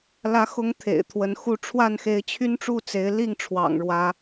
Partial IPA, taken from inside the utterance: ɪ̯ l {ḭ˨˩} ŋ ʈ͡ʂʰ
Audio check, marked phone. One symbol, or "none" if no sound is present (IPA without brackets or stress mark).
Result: i˥˨